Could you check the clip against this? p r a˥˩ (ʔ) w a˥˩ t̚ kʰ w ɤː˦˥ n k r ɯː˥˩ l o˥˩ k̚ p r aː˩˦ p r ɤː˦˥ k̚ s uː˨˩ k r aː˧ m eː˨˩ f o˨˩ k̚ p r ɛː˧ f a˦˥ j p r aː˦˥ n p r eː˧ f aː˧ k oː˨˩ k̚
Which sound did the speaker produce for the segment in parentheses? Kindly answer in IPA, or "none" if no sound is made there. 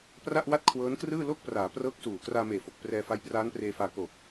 ʔ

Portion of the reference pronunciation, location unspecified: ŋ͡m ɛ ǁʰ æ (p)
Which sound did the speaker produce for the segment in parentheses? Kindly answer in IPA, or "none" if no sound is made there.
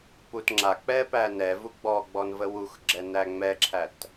t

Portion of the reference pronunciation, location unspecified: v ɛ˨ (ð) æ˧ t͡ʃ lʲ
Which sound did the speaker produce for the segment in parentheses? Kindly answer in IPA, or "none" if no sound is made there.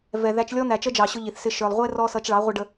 ð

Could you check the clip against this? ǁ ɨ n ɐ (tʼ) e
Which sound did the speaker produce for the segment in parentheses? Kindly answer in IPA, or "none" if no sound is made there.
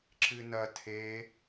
tʰ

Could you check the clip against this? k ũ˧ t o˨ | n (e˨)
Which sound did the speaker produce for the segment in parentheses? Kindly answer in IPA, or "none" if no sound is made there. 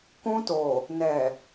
ɛ˨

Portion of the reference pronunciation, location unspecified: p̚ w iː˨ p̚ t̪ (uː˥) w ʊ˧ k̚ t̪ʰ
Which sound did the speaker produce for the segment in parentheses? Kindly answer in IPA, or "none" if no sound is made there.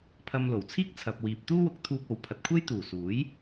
uː˥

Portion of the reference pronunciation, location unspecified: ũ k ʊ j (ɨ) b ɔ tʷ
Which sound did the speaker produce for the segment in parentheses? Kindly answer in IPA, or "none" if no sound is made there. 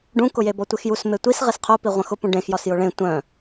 e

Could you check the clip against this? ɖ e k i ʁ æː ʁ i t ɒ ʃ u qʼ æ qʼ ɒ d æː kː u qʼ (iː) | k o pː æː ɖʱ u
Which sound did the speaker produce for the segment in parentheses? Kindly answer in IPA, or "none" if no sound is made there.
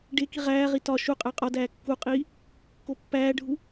iː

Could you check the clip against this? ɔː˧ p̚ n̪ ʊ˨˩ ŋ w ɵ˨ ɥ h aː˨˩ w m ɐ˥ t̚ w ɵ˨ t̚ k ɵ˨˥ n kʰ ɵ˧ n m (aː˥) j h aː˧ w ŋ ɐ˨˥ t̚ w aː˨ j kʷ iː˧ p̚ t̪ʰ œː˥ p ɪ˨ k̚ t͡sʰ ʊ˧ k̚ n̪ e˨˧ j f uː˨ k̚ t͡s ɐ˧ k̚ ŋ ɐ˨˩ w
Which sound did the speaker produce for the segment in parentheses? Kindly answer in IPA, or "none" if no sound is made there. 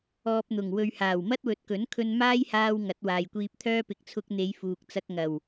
aː˥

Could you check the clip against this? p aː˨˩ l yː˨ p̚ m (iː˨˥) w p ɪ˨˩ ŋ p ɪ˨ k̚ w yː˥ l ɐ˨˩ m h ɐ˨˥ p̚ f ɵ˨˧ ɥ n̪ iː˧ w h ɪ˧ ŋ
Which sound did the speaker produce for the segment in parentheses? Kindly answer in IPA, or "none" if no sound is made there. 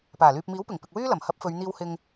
iː˨˥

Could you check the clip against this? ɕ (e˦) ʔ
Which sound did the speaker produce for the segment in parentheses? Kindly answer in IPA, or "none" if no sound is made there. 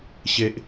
e˨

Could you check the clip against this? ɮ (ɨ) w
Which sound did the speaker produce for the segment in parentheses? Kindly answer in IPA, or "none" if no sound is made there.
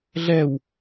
ɛ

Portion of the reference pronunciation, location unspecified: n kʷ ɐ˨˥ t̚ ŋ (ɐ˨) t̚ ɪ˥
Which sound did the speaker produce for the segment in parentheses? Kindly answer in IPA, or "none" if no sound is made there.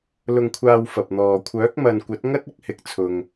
ɐ˥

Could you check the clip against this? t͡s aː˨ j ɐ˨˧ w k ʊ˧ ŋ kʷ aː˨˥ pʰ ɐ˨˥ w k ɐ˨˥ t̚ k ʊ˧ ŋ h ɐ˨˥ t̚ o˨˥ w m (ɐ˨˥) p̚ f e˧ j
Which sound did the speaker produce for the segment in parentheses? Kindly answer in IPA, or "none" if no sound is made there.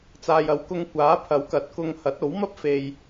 ɐ˥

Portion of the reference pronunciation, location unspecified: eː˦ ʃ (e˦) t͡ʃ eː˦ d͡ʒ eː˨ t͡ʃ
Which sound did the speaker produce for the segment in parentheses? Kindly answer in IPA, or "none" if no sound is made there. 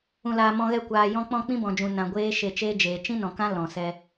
e˧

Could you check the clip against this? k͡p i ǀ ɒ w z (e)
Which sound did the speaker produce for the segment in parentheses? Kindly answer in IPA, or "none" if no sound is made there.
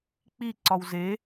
e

